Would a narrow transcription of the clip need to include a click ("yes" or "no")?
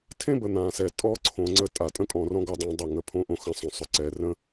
yes